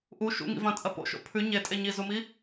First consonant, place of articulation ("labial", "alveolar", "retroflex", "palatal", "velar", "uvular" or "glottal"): glottal